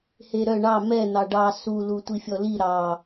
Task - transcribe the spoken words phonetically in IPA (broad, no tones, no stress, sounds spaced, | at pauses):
h e ɾ œ ɳ ɑ m ɛ n̪ ɑ ɖ ɑ s u l u tʷ i fʲ ɔ l i ɾ ɑ